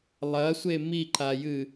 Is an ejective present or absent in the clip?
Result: absent